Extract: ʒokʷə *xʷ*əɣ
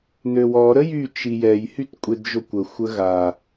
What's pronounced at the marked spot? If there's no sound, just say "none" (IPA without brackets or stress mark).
xʷ